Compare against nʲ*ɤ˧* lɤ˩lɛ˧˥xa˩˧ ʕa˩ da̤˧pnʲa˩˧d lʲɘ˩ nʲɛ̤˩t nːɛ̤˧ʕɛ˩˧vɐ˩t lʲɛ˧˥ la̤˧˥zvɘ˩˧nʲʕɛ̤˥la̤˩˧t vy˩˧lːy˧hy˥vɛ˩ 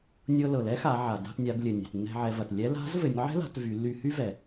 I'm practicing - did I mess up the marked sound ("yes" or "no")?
no